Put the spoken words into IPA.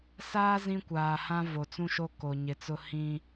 saː˦ zĩ˦kʷaː˨hã˦ vo˨t͡sũ˦ʃo˦ ko˨ɲɪ˨t͡sʊ˦ hĩ˦

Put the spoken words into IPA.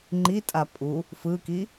ŋ͡ǃitʼa pʼu | fɯki

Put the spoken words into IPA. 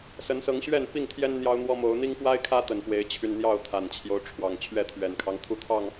sə˨˦nsɤ˨˦ŋ ɕɥɛ˥˨n pi˥˨ŋt̪ʰjɛ˦n n̪jɑ˦ʊ̯n̪wɔ˦mo˨˦ʊ̯ n̪i˦ŋxwa˦ɪ̯kʰä˦ t̪ə˨˩npwe˨˦ɪ̯t͡ɕʰy˧n n̪jɑ˥˨ʊ̯t̪ʰa˨˩nt͡ɕʰjo˦ʊ̯ʈ͡ʂʰwɑ˨˩ŋ t͡ɕʰɥɛ˥˨t̪ʰɥɛ˨˩nkʰɑ˦ŋ t̪ʰu˥˨t̪ʰɑ˥˨ŋ

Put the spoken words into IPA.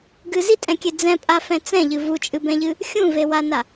ɡɨ zitʼɛ̃kʲe d͡zɛ̃pʼafɛ̃ t͡sɛ̃ʎɨ vut͡ʃʼɨbɛ̃ʎɨ | xʲũvewana

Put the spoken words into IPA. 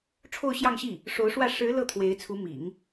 ʈ͡ʂʰo˥˧ʊ̯ɕjɑ˥˧ŋɕi˥˩ | ʂo˧˥ʊ̯ʂwä˥˩ ʂɻ̩˧˥ lɤ˥˩t̪ʰwe˧˥ɪ̯t͡sʰu˧˥ mḭ˨˩˦ŋ

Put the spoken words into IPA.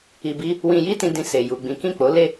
i˧bi˦ | wĩ˧ji˦tĩ˧dĩ˧ se˧ju˧ɡ͡bĩ˦ kĩ˦˨k͡po˨˦le˦˨

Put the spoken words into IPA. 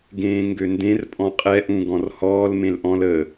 ɡẽːŋɡøndẽr pʼɔ̃qʼɛ ʔũɡɔ̃rhɔːl mẽlʔɔ̃l ə

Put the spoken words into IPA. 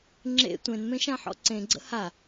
ŋ͡ǁḛ tʷẽnmẽ ʃãħɔ̰ǀẽɡ͡ǀə̰ ha

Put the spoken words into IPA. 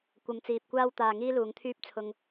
kʷɐ˨˧mt͡siː˨p̚kʷaː˥w t̪aː˧ŋiː˥luː˨˧ŋt̪ʰyː˥p̚ t͡sʰʊ˧ŋ

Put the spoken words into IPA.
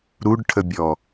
ɾuɖʈʰəbʲɔ

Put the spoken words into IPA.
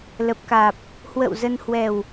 lə˨˩p̚kaː˨˩p̚ | hwə̰˧˨w zə˧n hwɛ˨˩w

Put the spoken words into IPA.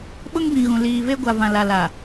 ɓʊ˦ŋbĩ˨ɣũ˨ liː˨ve˦ɡʷa˨vã˨ la˨la˨

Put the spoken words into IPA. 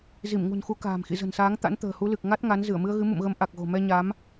zi˧˩mŋṳ˨˩nxu˨˦ ka̤ː˨˩mxḭ˧˨zə̤˨˩nsaː˨˦ŋ t̪a̰˧˥nt̪ə̤ː˨˩hu˨˦ lɨ˨˩k̚ ŋa˦˥t̚ ŋa˨˦n zɨ˧˩ə̯mɨ˧ə̯ɣɨ˨˦ mṵ˧˨mɣə˨˦m ʔa˨˩k̚ɣo̤˨˩mɛ˧ ɲa˨˦m

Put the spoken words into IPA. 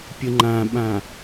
pʲɯŋ͡ǃãɓã

